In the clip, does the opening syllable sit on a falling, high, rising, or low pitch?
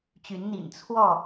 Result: rising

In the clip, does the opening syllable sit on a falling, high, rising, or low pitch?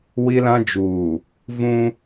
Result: high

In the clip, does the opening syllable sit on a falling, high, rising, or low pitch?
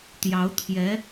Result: rising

